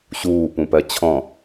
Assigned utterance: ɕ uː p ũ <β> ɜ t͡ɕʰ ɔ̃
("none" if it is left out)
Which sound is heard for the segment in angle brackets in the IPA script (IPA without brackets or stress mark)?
p